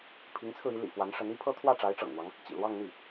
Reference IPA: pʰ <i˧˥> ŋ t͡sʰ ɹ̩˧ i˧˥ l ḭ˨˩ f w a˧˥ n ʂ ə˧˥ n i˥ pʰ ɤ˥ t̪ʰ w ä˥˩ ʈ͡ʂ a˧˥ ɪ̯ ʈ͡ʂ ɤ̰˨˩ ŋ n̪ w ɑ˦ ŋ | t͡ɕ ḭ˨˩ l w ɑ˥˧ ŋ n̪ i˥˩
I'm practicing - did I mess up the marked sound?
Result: no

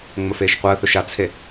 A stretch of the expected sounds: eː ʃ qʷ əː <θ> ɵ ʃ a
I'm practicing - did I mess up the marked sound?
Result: no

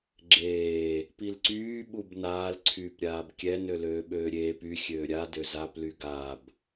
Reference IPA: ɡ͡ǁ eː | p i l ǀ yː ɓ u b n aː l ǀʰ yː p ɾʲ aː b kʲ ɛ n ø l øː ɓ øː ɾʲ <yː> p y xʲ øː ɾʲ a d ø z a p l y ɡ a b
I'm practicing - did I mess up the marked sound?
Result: yes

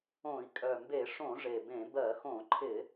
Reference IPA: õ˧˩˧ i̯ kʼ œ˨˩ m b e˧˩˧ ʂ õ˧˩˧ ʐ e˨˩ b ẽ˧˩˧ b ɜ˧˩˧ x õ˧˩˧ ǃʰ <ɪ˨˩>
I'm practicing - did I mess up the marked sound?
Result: yes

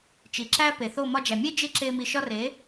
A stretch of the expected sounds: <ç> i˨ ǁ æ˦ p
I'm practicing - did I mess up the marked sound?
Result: yes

